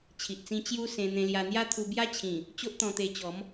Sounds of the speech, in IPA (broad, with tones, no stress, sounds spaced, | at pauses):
t͡ɕʰ i˨ ʔ t͡s ĩ˧ t͡ɕ j u˦ s ẽ˧ n̪ ẽ˧ l j a˧ n̪ j a˦ t̪ʰ u˧ b j a˦ t͡ɕʰ ĩ˨˩ | t͡ɕ o˦ ʔ t̪ ɔ̃˧ t̪ e˧ t͡ɕ ɔ˨˦ m